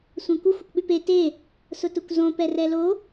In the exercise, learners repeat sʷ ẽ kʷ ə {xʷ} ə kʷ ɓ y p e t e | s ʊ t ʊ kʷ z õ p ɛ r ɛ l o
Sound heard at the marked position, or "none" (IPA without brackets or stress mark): xʷ